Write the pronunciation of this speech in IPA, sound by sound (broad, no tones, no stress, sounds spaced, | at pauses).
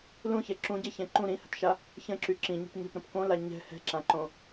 l ũ ç ɛ ǁ ũ ɟ ɛ ç ɛ̃ ǃ ũ ɾ ĩ h ə̤ t ʃ a | ç ə̃ ǁ y ǁ ĩ ɲ ə̤ p ɲ ə̤ p ɾ ə̃ p k õ l a ɲ ɛ̤ h ɛ̤ ǁ ã ǃ õ